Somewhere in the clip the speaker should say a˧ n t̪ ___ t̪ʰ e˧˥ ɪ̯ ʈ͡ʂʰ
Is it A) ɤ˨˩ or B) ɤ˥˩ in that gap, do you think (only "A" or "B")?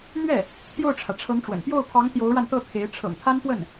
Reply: B